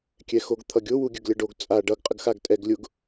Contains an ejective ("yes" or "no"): yes